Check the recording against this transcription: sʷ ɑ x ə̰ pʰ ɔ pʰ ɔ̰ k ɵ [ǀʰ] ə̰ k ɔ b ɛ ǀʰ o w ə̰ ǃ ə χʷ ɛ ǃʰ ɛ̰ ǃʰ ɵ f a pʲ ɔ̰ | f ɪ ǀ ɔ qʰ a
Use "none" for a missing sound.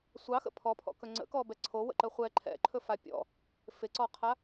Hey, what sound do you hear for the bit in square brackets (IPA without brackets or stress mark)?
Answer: ŋ͡ǀ